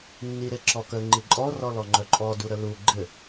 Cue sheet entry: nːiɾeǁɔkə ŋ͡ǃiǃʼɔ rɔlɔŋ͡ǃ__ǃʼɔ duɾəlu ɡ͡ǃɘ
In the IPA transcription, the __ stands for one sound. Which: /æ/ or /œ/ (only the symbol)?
œ